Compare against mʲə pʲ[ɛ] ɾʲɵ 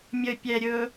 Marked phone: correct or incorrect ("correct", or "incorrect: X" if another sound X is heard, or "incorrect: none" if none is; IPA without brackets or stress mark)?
correct